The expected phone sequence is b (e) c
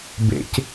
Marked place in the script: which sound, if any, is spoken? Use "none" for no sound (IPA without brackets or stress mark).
ḛ